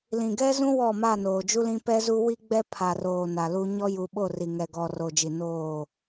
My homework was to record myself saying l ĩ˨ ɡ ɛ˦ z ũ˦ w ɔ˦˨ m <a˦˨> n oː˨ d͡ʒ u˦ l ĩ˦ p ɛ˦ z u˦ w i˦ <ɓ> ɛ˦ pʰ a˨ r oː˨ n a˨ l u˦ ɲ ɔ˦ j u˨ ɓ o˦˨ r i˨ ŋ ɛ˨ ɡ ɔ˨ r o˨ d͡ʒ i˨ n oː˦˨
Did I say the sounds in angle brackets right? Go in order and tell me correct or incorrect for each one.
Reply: correct, incorrect

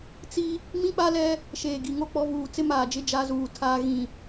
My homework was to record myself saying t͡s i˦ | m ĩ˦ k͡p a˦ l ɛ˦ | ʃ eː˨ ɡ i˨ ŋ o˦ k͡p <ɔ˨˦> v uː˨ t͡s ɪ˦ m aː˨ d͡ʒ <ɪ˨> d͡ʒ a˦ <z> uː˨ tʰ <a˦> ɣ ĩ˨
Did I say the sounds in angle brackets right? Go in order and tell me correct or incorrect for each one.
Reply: correct, incorrect, correct, incorrect

